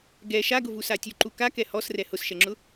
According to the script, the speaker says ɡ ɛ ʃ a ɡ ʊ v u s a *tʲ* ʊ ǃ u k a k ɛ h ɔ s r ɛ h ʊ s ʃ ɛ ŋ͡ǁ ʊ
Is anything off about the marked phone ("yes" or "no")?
no